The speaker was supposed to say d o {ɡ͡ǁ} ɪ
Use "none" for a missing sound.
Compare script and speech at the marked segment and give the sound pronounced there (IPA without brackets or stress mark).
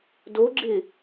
ɡ͡ǁ